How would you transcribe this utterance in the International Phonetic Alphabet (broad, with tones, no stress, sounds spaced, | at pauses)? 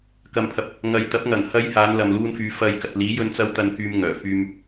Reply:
k ɐ˨ m pʰ ɐ˨ p̚ | ŋ ɐ˨ j t̪ ɐ˨˥ p̚ ŋ ɐ˨˩ ŋ h ɐ˧ j h aː˨˧ n l ɐ˨ m l uː˧ n f yː˨˧ f ɐ˧ j k ɐ˨ t̚ l iː˨˥ j ɵ˧ n t͡s ɐ˥ w t̪ ɐ˧ n k yː˧ m ŋ œː˨˩ f yː˧ m